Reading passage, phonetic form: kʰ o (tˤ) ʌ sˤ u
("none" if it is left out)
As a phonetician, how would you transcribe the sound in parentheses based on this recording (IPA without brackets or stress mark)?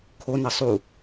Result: n